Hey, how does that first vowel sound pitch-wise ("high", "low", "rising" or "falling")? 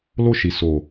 falling